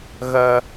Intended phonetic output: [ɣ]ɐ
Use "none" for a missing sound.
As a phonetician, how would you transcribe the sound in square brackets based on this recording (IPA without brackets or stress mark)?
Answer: ɣ